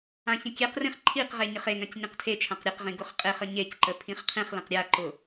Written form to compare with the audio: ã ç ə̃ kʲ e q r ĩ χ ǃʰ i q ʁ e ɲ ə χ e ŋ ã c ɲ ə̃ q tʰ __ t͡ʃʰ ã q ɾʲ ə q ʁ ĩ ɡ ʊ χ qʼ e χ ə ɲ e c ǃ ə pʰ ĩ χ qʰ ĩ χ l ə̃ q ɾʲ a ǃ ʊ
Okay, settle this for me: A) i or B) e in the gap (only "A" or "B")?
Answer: B